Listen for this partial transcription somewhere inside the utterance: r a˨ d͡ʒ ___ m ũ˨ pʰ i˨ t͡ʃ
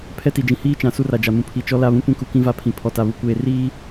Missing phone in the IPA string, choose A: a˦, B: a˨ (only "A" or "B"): B